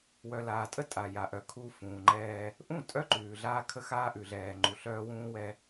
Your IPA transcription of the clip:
w œ˨ l aː˨ tʼ ə˦ tʼ a˨ j a˨ ʔ œ˨ kʰ u˦ f ũː˨ ŋ͡ǃ ɛː˦ | ʔ ũ˦˨ tʼ œ˦ ǃ ʉː˨ ɮ aː˦ kʰ ə˦ x aː˦ ʔ ʉ˨ ɮ ɛː˨ ŋ͡ǃ u˨ ɬ œː˦ w ũː˦ w ɛ˦

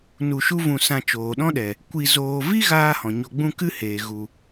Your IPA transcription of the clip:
n u˧ ʃ u˦ v ũ˧ s ã˧ t͡ʃ oː˨ ɗ ɔ̃˦ ɗ ɛ˨ | kʷ i˧ z oː˧ v i˦ ɣ aː˦ h ɔ̃˨ ɲ o˧ ɡ͡b ũ˦ k ɨ˦ h eː˨ ɣ u˨

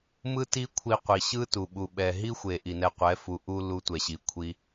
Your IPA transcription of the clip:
m ɯ˦ t i˦ kʷʰ i˧ qʷ i˨ ɕ ɯ˦ t u˨ ɓ u˨ ɓ ɛ˨ ɦ i˦ xʷ e˨ ʔ i˨ n ɛ˧ qʷ ɛ˨˦ f u˨ ʔ u˦ l u˧ tʷ ɛ˨ ɕ i˨ kʷʰ i˧

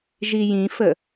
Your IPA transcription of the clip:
ʒ i j ĩ f ə

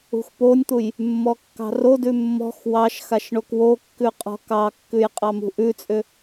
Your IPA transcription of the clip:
ṳ x p o nʲ t̪ u j | mː ɔ kː ɑ̤ r o d ʉ mː ɔ̤ x w ɑ ʃ x a ʃ ɳ o k w o kː ʉ qʼ ɔ̤ k ɑ kː ʉ j qʼ ɑ m ṳ ʔ ʉ t͡sʼ ʏ

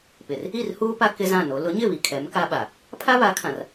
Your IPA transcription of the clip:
p ɪ˨ r | i˦˨ r h uː˦ p a˦ k ɪ˦ z ã˦˨ n o˨˦ l ʊ˨˦ ɲ ɪ˦˨ β i˨ kʰ ɛ˨˦ m k a˦ ɓ a˨ | pʰ a˦ β a˨˦ kʰ ã˨ r

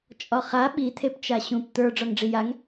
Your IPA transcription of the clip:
t͡ʃʼ ɒ χ a ɓ i t̪ʰ e p t͡ʃ a ɕ ũ p t̪ ə˞ ɖ͡ʐ ɒ ŋ ɖ͡ʐ i j a ŋ

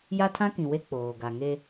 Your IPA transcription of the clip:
j a˦ tʰ ã˦ k ĩ˨ w e˦ k͡p oː˨ ɡ a˨ ŋ e˦

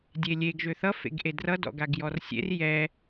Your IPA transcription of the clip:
dʲ e lʲ e ɡ ʒ ø θ ʌ f ḛ ɡ ʔ e d r ʌ d ɔ̰ ɡ a ɡ j ɔ r sʲ ḛ r j ɛ

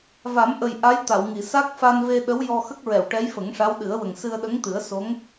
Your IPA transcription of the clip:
v a˨˩˦ m ʔ ə˨˩ j ʔ a˧˥ j t̪ a˨˩˨ w ŋ i˨˩˨ s a˦˥ k̚ f a˧ n v e˧ ɗ ə˧˥ w j ɔ˧ x ə˦˥ k̚ ɹ ɛ˨˩˨ w ʈ ɛ˧˥ j f ə˨˩˦ ŋ ʂ a˧˥ w ɗ ɨ˨˩˦ ə̯ w ə˨˩ ŋ s ɨ˧ ə̯ ɗ ə˧˥ ŋ t̪ ɨ˨˩˦ ə̯ s o˧˥ ŋ

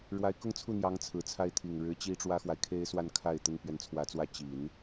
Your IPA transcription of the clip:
ɻ w a˧˥ ɪ̯ k ʊ˥ ŋ t͡sʰ u˥˩ n̪ j ɑ˧˥ ŋ t͡sʰ ɹ̩˨˩ t͡sʰ a˥ ɪ̯ t̪ʰ i˨˩ ŋ ɻ ɻ̩˧˥ t͡ɕ i˥ ʈ͡ʂ w ä˥ x w a˨ ɪ̯ kʰ e˥ ɪ̯ s w a˥˧ n kʰ a˥˩ ɪ̯ t̪ ə˥ n p ɥ ɛ˧˥ n t͡sʰ w ä˧˥ t͡s w ä˥˩ t͡ɕ i˨˩˦ n

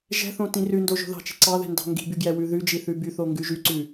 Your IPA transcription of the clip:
ʒ ɛ̤ θ õ t ĩ r ʉ n d o ʒ o̤ ð ɑ̤ t͡ʃ i̤ ǀ ɑ ð ɛ̤ n d ɑ̤ ŋ ɡ i̤ b y ɡ j ɛ w ʉ ð ʉ d͡ʒ i θ ʉ b y θ o ŋ ɡ ʉ ʒ y ǀ ʉ

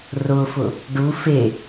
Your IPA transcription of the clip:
r ʊ f ʊ | ɖ u f e

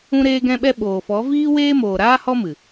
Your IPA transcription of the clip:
ũ˦ ɾ eː˦ ɡ ɛ̃˦ ɓ ɛ˦ ɓ oː˨ f ɔ˨˦ v iː˦ w eː˦ m oː˨ ɾ aː˦ h ɔ˦ m ɨ˨

